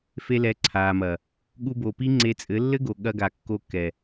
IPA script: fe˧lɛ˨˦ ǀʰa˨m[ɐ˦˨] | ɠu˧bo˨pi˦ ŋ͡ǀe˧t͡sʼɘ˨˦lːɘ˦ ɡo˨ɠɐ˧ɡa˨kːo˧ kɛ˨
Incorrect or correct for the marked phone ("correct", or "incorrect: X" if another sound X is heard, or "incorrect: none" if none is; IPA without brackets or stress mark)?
incorrect: ɐ˨